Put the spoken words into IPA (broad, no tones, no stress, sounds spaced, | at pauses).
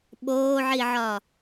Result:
ɓ oː ʕ i ʕ ɒ